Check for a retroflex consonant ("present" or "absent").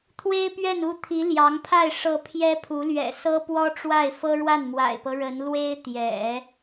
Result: present